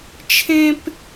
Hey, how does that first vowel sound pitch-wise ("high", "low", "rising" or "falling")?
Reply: high